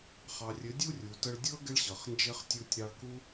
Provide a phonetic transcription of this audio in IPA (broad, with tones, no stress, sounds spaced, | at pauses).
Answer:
χ ɑ˨ rʲ ɘ˨˦ dʲ u˦ rʲ u˨ t ə˧ ɭ dʲ ɤ˦ ɡ ɪ˦ ɭ ɕ ɤ˨ χ n d͡ʒ ɪ˦ χ tʲ u˦ tʲ ɾ ɑ˧ ɭ k u˦